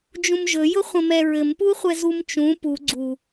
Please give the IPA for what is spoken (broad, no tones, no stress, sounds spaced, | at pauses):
d͡ʒ ũ m ʒ ɵ j ʊ χʷ ə̃ m ɛ ɹ ɘ m p u χʷ ɛ z u m t͡ʃ ũ p u ɡ͡ǀ u